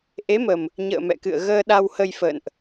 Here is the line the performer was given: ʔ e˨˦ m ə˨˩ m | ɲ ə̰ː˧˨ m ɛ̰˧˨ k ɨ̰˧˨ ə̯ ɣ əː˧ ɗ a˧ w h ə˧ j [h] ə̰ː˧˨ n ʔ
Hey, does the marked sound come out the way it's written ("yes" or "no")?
no